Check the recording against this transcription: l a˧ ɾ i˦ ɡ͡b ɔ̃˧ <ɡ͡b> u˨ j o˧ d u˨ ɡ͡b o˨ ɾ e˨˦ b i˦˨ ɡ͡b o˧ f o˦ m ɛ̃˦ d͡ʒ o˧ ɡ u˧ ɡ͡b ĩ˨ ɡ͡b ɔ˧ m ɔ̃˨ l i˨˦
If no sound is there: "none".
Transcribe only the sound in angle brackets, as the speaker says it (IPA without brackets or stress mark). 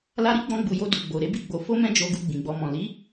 ɡ͡b